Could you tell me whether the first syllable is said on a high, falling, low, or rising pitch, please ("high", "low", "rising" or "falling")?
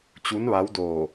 rising